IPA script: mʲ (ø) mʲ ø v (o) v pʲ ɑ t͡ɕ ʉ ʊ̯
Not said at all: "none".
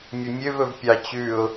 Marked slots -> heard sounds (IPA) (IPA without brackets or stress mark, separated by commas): ɵ, ɵ